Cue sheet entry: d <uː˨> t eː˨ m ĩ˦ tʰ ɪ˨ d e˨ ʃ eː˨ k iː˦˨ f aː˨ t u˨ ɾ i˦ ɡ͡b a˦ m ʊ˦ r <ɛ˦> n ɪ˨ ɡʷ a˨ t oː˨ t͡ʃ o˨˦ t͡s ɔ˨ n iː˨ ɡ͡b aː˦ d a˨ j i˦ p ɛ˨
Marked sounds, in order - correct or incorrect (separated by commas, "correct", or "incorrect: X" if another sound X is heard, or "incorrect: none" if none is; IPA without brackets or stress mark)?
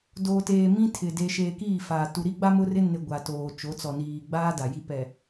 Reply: incorrect: oː˨, incorrect: ɪ˦